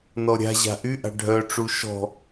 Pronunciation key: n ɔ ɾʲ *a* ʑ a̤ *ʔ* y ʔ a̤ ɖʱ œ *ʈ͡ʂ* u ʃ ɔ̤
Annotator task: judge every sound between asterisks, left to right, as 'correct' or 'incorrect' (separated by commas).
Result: incorrect, correct, correct